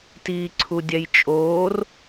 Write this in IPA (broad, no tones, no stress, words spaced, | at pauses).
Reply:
tiːǀʰudʲɛjt͡ʃʼoːr